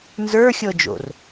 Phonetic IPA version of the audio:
n z ə˞ xʲ ɤ d͡ʒ o̰ r

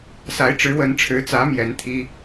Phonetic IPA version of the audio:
s a˨˦ ɪ̯ ʈ͡ʂ ɻ̩˨˦ w ə˨˦ n ʈ͡ʂʰ ɻ̩˨˦ t͡s ä˨˦ m j ɛ˨˦ n t̪ʰ i˦

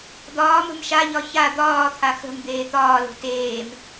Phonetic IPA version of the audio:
d̪ ɒː m ə̤ m ʃ a ʎ ɒ ç a d̪ ɒː t̪ʰ a x ə̤ m d̪ eː t̪ ɒː l o̤ t eː m

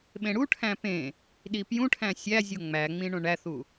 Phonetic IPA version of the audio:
ɓ ẽ ɽ u ʈʰ æ̃ p ẽ | ɗ i p j ũ ʈʰ æ̃ sʲ æ zʲ o ŋ͡m æ ŋ͡m ĩ ɳ õ ɳ æ θ u

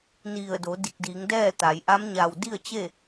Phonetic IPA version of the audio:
n i˧˩ ə̯ d o˩˧ d i˧˩ k̚ d iː˩˧ ŋ d ɛː˥˨ t̪ a˩˧ j ʔ a˧˥ m ɲ a˧˩ w d i˥˨ ə̯ t͡ɕ e˥˨

